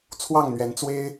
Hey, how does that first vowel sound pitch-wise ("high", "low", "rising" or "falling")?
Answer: falling